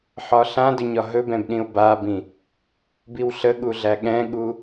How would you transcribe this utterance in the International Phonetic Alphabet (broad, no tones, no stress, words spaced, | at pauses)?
ħɒɬãdɵɲɒ ɦɵbɛ̃bɗĩo̯ babĩ | biwɬəɠuɮæ ɠɛ̃ɠu